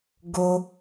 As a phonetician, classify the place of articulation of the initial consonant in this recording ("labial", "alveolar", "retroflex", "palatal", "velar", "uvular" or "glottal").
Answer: velar